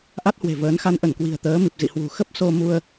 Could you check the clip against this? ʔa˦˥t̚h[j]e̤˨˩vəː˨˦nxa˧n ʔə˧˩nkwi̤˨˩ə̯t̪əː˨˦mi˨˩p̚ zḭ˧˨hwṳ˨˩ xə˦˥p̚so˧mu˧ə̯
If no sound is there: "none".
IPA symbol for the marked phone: w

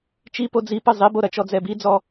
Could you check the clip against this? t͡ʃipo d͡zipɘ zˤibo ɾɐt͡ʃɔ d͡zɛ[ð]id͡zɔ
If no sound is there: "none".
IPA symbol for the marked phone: b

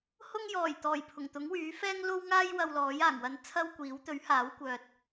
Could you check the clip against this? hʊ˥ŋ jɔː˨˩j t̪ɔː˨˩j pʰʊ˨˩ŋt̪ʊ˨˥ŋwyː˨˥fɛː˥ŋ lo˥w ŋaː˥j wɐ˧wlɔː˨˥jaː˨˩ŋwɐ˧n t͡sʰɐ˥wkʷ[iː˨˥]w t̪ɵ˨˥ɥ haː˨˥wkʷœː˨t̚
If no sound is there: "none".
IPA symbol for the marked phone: iː˨˥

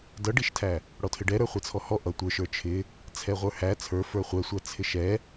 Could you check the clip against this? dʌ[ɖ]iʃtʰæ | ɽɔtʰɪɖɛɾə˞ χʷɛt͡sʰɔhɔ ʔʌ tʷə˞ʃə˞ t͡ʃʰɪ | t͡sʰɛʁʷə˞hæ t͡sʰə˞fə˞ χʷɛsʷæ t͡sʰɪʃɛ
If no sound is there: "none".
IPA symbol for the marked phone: ɖ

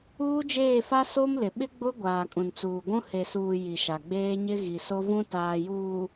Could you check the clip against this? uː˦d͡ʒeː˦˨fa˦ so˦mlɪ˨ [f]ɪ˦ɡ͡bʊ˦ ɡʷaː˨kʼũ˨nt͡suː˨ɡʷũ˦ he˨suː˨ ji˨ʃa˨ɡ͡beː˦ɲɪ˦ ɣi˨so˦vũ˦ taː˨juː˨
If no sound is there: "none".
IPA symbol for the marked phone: ɓ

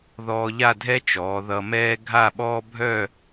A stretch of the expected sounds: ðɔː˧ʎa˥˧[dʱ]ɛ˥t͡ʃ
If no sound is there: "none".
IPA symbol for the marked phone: dʱ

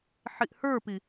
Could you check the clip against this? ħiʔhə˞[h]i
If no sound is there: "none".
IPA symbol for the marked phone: p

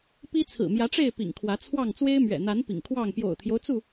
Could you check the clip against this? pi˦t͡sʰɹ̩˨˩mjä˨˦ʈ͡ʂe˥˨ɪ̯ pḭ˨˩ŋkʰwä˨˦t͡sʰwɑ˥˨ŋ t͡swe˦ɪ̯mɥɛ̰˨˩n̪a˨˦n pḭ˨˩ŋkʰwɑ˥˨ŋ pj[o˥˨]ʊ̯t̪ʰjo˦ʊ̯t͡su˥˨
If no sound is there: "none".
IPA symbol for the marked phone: o̰˨˩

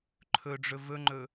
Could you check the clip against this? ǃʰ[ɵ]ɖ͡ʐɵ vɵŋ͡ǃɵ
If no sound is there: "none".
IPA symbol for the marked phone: ɵ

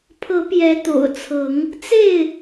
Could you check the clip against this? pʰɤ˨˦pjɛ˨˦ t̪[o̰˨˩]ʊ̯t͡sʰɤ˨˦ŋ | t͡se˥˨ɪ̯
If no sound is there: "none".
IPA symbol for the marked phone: o̰˨˩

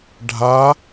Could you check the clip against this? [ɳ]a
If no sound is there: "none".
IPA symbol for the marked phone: ɖʱ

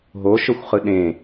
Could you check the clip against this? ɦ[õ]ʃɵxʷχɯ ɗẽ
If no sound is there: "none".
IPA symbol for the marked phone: o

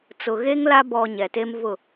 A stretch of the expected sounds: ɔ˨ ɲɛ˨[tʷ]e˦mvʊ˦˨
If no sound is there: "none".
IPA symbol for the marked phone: t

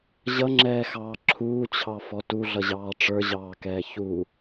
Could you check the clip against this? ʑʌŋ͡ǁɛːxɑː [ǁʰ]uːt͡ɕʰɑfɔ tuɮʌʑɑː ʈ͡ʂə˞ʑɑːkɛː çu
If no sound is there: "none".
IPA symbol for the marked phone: ǁʰ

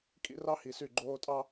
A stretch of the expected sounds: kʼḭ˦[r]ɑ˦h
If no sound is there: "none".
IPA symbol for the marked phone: r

